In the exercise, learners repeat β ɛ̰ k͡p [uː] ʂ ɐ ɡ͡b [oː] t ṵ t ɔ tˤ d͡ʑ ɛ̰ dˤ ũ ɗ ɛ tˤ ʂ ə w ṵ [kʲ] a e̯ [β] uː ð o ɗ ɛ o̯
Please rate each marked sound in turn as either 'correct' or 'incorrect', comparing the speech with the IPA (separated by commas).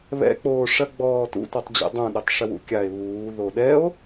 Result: incorrect, incorrect, correct, correct